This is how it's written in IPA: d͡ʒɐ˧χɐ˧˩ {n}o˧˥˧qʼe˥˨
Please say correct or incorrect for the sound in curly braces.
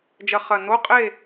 correct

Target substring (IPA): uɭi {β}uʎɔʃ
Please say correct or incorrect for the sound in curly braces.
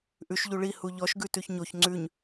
incorrect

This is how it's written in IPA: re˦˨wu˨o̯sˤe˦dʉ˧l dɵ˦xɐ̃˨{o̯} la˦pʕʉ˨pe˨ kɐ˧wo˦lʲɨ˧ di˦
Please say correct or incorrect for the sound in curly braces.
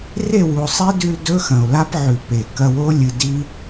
correct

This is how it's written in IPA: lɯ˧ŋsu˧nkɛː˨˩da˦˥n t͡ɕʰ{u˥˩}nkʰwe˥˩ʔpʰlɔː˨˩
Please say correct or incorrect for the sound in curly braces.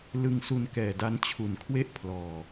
incorrect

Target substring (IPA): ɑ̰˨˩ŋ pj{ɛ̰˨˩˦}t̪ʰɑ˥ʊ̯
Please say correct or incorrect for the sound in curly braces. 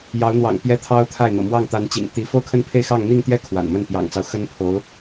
incorrect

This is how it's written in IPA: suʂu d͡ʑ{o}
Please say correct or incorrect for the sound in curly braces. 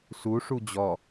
incorrect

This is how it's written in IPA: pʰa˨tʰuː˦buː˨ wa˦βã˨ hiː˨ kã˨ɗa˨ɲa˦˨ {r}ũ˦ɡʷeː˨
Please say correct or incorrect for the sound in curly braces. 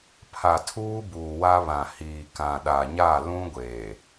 incorrect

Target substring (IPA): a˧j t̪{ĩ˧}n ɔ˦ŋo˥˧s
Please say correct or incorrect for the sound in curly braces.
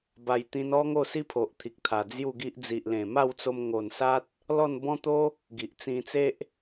correct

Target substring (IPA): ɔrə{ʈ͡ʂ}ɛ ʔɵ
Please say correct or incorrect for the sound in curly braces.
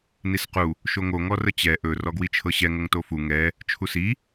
incorrect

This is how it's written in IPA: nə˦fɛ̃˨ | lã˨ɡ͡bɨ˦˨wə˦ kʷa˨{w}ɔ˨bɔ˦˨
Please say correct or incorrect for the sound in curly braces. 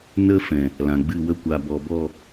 incorrect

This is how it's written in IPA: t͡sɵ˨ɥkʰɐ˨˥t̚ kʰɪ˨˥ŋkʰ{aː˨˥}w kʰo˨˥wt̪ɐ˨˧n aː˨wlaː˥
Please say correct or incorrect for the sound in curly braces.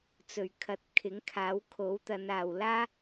correct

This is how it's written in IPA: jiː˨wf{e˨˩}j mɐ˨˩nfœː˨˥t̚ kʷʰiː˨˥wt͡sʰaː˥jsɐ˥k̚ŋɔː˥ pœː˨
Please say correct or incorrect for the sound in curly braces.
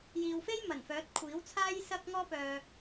incorrect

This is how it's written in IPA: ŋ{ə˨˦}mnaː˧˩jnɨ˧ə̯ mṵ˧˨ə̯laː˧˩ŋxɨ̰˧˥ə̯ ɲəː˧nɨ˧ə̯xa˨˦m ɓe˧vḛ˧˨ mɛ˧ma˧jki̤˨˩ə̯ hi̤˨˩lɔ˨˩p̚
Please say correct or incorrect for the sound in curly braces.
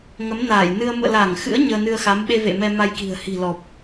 correct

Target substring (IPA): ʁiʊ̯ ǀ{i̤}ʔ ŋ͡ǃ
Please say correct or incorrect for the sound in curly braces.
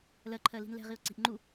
correct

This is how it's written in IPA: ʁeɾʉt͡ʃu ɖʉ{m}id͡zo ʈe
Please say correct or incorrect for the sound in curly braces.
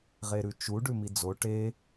correct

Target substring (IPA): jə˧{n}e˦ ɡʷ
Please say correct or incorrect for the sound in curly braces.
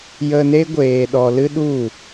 correct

